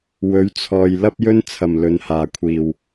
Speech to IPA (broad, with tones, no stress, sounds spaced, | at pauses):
w ɵ˨˥ ɥ t͡sʰ ɔː˨ j l ɐ˥ p̚ j ɵ˥ n t͡sʰ ɐ˨ m l ɵ˨˧ n h aː˨ kʷʰ iː˨ w